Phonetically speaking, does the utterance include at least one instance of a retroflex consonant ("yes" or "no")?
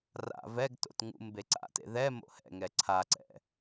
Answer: no